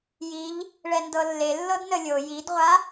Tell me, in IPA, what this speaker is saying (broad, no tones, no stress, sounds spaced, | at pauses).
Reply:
j i ʎ | ɭ ɛ n d ɤ lː e lː ɤ d n ə lʲ o j i d ʁʷ a